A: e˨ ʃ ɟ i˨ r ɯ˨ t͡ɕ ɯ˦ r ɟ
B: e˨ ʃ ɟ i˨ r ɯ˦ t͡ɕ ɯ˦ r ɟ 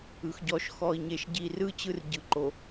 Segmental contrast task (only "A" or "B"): B